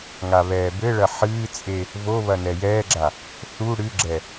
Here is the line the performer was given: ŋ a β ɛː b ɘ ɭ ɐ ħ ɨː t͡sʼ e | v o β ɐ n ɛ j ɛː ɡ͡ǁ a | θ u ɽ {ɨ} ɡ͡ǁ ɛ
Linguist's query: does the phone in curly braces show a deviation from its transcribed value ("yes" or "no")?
no